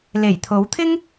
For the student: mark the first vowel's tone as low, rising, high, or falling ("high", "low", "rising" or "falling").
low